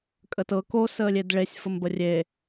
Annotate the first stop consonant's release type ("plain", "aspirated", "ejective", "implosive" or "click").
ejective